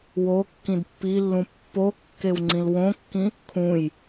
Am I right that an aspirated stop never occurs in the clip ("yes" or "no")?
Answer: no